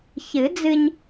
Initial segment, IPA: ç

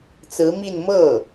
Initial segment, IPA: t͡s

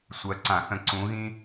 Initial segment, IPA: sʷ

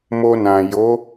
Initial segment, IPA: m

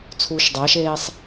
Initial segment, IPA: t͡sʰ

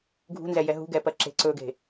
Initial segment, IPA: ɡʱ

